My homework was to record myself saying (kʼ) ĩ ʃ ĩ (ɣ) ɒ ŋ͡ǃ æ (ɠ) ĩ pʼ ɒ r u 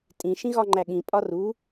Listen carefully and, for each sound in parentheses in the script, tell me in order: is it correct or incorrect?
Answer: incorrect: tʼ, correct, correct

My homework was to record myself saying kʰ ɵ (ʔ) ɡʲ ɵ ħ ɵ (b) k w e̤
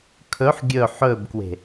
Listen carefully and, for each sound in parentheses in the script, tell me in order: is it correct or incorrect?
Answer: incorrect: ħ, correct

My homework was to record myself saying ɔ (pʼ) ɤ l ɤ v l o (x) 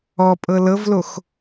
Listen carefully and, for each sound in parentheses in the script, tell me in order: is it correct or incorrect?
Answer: correct, correct

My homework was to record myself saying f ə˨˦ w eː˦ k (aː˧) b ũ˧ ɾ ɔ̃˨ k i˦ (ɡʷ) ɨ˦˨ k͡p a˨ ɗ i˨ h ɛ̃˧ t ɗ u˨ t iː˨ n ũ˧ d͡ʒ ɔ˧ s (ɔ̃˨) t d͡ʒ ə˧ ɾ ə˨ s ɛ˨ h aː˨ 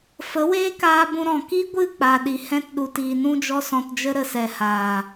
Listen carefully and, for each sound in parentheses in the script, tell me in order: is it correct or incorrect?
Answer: correct, correct, correct

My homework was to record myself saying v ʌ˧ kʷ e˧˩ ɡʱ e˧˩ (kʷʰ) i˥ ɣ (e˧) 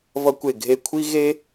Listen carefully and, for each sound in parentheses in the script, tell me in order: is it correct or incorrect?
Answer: correct, incorrect: e˥

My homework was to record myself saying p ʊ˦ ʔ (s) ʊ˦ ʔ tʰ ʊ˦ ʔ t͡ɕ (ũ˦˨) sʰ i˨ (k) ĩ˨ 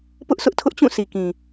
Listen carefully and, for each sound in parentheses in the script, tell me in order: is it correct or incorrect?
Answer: correct, correct, correct

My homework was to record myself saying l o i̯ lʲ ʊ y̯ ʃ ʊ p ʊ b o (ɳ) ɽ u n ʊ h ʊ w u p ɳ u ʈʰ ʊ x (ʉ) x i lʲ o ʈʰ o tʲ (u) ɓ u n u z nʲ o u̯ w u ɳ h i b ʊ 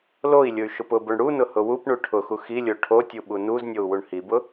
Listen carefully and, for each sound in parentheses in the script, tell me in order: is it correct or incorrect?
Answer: correct, incorrect: u, correct

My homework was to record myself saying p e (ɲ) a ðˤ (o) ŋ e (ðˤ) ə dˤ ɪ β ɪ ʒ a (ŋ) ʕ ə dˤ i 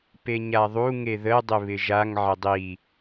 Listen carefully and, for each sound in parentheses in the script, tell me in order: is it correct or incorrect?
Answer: correct, incorrect: u, incorrect: ð, correct

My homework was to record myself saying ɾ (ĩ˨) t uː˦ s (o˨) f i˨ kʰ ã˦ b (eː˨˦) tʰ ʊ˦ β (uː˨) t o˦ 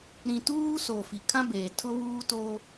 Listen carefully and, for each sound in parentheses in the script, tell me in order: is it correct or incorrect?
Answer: correct, correct, incorrect: eː˨, incorrect: uː˦

